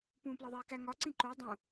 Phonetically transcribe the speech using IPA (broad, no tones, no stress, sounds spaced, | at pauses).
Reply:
p ũː p l ɒ ðˤ eː k æ ŋ ɒ ǀ ĩ ǃ o dˤ ũ